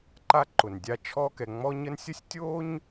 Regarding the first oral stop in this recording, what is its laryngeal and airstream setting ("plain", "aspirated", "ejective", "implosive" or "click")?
click